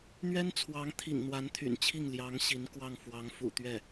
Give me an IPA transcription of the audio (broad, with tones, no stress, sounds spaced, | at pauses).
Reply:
n̪ ɥ ɛ˥ n t͡sʰ w ɑ˧˥ ŋ t̪ʰ ḭ˨˩ ŋ n̪ w a˧˥ n t̪ʰ y̰˨˩ n t͡ɕʰ i˥˩ ŋ l j ɑ˧˥ ŋ ɕ i˧˥ n k w ɑ˥˩ ŋ f w ɑ˧˥ ŋ f ṵ˨˩ t̪ ɥ ɛ˥˩